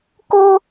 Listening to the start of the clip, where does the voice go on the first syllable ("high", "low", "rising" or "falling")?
high